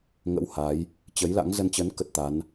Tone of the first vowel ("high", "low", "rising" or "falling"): rising